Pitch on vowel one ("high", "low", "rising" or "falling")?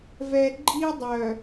low